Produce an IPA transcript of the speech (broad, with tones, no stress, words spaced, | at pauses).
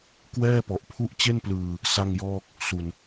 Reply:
kwɛː˥˩pɔ˨˩ʔpʰu˥˩ʔ t͡ɕe˥˩nplɯː˧ | sa˥˩ŋjɔː˥˩k̚ | su˨˩n